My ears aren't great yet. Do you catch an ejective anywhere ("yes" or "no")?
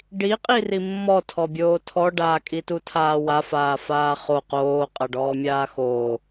yes